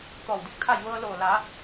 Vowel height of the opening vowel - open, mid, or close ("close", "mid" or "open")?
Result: mid